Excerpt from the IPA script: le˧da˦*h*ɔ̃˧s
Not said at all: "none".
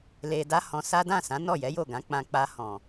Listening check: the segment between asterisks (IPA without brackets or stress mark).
h